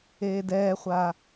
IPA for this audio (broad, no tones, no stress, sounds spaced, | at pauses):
eː d ɛː χʷ a